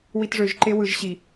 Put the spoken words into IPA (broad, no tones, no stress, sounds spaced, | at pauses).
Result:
w i t ʐ ø ʒ ǃ e w ɯ ʒ ɕ i